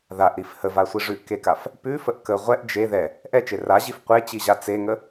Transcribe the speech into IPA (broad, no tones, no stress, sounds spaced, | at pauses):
ð a ʔ ɾ i f h ə v a sʷ i ʐ ʉ ʔ k e k a f | p ʉ f ə ʔ k ə ʁʷ ɛ ʔ d͡ʒ e ð ɛ | ʔ ɛ t͡ʃ e r a ʑ i f qʷ e t͡ɕ i ʑ a t͡s e ŋ ə